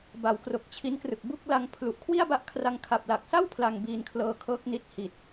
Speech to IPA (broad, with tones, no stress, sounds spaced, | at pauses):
b a˩˦ w k r o˨˩ k̚ t͡ɕʰ i˦˥ n k r ɯ˨˩ k̚ b u˥˩ k̚ l a˧ ŋ pʰ l u˨˩ ʔ kʰ w i˥˩ a̯ b a˦˥ ʔ kʰ r a˧ ŋ kʰ a˨˩ p̚ l a˨˩ k̚ s a˥˩ w pʰ l a˧ ŋ b iː˧ n kʰ l ɤː˧ kʰ ɤː˦˥ k̚ n i˦˥ t̚ h i˨˩ t̚